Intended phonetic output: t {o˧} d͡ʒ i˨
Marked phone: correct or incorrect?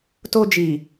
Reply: correct